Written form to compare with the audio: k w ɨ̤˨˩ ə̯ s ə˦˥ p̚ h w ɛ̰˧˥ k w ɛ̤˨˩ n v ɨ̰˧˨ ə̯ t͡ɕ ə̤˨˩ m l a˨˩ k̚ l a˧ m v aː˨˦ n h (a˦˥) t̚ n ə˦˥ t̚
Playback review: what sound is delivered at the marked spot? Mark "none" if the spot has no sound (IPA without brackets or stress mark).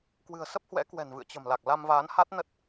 a˦˥